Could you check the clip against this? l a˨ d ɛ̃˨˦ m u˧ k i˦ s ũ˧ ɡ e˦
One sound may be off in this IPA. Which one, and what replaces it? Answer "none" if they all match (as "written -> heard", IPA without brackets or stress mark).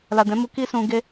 none